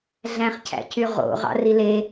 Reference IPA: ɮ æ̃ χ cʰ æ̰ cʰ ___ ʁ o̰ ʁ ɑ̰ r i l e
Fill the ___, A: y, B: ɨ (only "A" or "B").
A